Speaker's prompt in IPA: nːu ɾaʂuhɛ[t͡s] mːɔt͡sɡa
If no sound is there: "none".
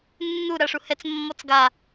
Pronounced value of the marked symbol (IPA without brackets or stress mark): t͡s